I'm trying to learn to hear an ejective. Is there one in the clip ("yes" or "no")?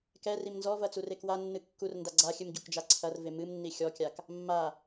no